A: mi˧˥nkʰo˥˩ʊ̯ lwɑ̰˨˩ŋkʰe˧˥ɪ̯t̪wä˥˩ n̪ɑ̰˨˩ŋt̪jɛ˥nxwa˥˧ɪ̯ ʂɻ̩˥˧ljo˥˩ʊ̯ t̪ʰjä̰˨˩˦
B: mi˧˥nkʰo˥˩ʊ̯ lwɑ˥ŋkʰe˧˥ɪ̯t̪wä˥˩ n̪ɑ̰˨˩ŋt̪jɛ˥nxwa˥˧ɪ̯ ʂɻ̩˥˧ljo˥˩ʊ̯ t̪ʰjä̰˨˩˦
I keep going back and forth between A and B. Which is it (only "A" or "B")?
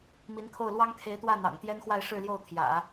B